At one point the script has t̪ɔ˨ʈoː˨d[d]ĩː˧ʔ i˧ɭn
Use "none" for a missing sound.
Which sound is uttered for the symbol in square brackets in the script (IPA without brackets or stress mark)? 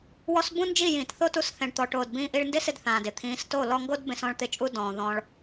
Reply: b